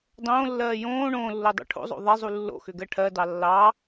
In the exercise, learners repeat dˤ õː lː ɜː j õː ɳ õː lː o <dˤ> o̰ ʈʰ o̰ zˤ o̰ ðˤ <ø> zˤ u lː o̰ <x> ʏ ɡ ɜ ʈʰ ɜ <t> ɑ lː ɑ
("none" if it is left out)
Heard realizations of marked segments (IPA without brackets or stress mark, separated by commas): dˤ, e, x, d